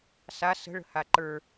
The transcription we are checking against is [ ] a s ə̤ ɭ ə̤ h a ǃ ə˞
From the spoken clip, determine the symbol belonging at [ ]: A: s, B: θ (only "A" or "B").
A